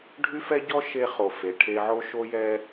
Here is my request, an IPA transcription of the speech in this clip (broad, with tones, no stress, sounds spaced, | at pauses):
ɖʱ y˦ f ɛ˦ ɟ ɔ˦ ʃ e˦ χ o˨ f e˨ ʈʰ e˦ ʕ o˦ ʃ o˦ j ɛ˦